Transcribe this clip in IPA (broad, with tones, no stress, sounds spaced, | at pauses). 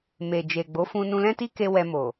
m e˨ d͡ʒ e˨ ɡ͡b o˨˦ f ũ˧ n ũ˧ l ɛ̃˦ t i˦ k e˧ w ɛ˧ m o˨